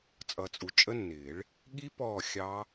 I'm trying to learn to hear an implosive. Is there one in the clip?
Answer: yes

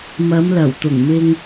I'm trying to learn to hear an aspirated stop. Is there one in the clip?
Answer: no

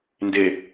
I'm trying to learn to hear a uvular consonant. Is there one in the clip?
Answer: no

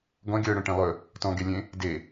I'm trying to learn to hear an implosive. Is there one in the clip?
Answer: no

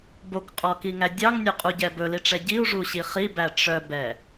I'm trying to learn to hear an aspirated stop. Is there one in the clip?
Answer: no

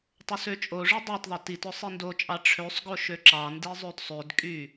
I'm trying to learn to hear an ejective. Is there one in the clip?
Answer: yes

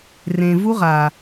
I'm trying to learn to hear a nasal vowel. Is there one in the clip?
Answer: yes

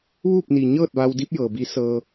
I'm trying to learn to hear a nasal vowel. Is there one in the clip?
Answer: no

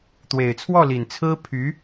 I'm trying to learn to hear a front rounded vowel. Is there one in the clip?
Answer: yes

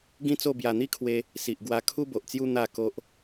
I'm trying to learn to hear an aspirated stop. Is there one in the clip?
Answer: yes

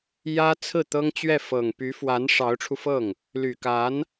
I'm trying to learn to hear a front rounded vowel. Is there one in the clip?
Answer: yes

